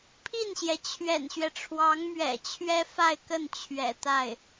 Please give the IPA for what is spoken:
pʰi˥˩nɕjɛ˩ t͡ɕʰɥɛ̰˨˩nɕɥɛ˦ʈ͡ʂʰwɑ˧˥ŋmɥɛ̰˨˩ t͡ɕʰɥɛ˥fa˥˧ɪ̯kə˥˩n t͡ɕʰɥɛ̰˨˩t̪a˥˩ɪ̯

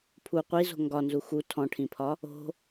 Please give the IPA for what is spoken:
pʰu qʷizo̤ ŋɡɒnzu xu tʰɔ̃ʈʰĩpʰɒ | o̤

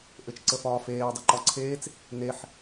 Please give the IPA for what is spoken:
ʔɘt͡ʃǀəfɒːfeː dˤɘǃɒǀʰeːt͡s | neħ

